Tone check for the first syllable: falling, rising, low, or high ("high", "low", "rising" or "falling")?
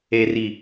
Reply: low